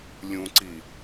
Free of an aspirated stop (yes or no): yes